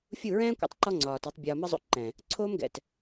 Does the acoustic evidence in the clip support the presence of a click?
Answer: yes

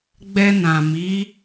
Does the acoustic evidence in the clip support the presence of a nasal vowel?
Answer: yes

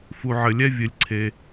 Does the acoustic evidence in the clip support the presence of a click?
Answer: yes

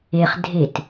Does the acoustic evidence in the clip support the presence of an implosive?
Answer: no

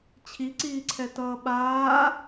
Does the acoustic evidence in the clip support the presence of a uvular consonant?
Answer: no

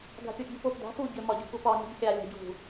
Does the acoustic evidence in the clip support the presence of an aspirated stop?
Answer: no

